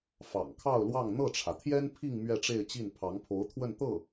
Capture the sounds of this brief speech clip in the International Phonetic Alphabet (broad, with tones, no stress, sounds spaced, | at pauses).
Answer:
f ɑ̰˨˩ ŋ kʰ ɑ˥˧ ʊ̯ l w ɑ˥˧ ŋ n̪ ɤ˥˩ ʈ͡ʂʰ ä˩ t̪ʰ j ɛ˥ n pʰ i˥˧ ŋ m ɥ ɛ˥˧ ʈ͡ʂ e˥˧ ɪ̯ t͡ɕ i˥˩ n pʰ ɑ˧˥ ŋ pʰ o˧˥ ʊ̯ t̪ʰ w ə˥˧ n t̪ ɤ˥˩